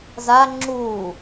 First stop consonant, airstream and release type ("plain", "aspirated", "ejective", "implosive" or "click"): click